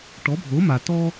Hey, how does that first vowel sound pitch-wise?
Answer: rising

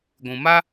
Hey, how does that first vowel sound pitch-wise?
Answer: low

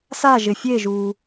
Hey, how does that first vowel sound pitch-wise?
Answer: falling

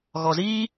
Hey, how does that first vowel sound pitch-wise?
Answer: low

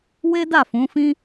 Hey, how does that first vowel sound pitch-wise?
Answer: high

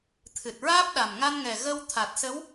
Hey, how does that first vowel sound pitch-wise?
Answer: low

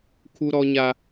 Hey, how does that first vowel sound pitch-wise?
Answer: high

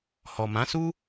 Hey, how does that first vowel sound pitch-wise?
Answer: low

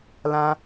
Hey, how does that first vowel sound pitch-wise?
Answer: high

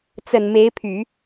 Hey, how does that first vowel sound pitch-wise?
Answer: low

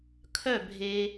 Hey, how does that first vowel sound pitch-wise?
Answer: falling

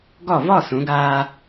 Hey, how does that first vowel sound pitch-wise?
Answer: falling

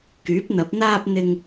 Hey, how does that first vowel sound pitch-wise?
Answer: rising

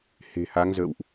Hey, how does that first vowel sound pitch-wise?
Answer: low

